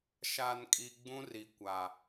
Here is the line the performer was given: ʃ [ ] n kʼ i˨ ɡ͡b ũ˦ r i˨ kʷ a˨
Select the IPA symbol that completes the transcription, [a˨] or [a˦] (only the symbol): a˨